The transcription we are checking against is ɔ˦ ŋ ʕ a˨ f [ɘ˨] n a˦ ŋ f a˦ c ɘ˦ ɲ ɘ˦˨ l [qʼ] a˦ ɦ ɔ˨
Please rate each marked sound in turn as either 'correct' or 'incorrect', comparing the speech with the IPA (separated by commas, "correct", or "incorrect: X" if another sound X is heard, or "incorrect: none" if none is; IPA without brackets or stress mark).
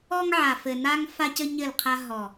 correct, incorrect: qʰ